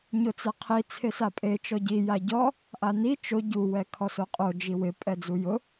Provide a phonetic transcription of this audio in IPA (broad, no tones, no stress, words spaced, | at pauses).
ɲʊt͡sɛqʰi t͡sʰesapʼe t͡ʃɔɟi jaɟɔ | ʔani t͡ʃo ɟu wɛkʰɔsoqʼo d͡ʒiwɪ pʼɛd͡zujʊ